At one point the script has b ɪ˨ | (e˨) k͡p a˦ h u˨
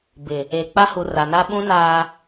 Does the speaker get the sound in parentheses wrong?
no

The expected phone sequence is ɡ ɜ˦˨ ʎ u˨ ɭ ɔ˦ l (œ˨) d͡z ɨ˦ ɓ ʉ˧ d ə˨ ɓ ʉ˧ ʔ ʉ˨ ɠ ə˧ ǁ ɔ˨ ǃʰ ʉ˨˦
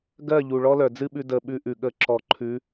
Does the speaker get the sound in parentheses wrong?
no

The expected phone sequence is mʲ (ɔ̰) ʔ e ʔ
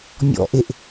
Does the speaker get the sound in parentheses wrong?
no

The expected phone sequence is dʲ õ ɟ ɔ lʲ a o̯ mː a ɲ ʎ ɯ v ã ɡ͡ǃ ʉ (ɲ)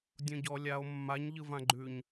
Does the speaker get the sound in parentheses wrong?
no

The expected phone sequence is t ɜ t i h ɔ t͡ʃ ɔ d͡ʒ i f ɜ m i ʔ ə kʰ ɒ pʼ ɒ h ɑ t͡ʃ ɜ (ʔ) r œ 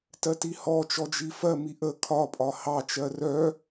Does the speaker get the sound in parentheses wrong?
yes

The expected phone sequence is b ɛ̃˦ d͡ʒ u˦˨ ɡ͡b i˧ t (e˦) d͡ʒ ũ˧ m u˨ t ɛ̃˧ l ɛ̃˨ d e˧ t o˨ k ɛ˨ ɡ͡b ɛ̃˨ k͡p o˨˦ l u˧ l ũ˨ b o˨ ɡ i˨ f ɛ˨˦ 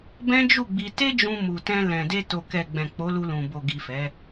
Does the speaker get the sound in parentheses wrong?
no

